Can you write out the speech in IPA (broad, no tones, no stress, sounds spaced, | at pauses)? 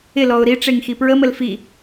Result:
ɪ l ɔ ʊ̯ ɾ i ʈ͡ʂ e ŋ x i p ɹ ə m ə l f i